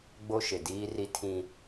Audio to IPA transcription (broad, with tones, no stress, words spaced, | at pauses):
ɡ͡bo˦ʃɪ˨ diː˦ri˦tʰĩ˦